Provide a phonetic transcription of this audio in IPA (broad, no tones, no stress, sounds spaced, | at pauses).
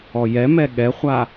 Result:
ɔ j ɛ m ɛ ɠ ɛ χʷ a